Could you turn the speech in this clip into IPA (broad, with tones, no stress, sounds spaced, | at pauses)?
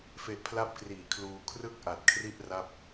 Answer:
f e˦˥ ʔ pʰ l a˥˩ p̚ k r iː˨˩ kʰ l uː˧ kʰ r ɯ˥˩ k̚ ʔ a˨˩ t̚ kʰ r i˥˩ ʔ r a˥˩ p̚